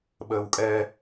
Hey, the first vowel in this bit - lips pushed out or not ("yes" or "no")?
no